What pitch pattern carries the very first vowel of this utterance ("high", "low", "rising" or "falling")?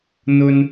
high